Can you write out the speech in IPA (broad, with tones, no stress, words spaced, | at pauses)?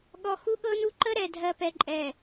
ɠɔ˨ xu˦ɠɤ˦nu˦ ǃə˦ɾɛ˨ dʱɜ˨pɛ˨ǃʼɛ˨